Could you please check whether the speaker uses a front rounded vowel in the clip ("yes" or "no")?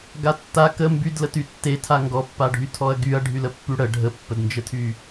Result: yes